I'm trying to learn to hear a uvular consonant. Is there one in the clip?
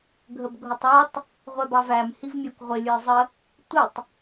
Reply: yes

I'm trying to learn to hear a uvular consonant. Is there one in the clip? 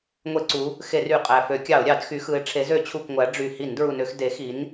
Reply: yes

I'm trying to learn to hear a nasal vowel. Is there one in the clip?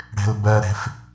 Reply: no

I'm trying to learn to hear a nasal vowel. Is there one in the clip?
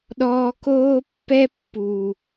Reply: no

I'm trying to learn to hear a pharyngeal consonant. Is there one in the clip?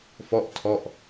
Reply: no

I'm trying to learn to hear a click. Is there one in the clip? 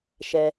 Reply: no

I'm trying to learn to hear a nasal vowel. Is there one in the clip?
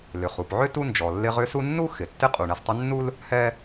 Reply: no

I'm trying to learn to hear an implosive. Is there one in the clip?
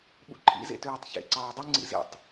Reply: yes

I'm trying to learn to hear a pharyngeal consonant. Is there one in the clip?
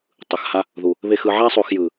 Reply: yes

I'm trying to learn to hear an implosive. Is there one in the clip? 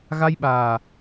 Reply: yes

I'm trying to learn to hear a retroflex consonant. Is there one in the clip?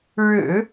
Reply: yes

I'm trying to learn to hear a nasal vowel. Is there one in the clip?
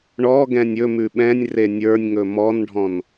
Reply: yes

